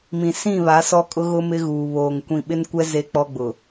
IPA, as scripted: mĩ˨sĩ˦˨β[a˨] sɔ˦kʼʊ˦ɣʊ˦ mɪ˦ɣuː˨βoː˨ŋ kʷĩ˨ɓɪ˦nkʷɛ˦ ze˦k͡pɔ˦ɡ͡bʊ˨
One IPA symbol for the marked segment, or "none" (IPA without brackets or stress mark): a˨˦